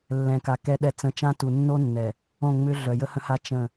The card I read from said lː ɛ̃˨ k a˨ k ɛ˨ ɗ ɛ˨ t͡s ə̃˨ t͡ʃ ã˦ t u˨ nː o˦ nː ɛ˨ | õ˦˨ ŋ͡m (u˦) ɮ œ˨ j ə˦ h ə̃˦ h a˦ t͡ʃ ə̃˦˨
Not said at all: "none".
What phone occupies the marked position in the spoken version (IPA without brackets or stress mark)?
ʏ˦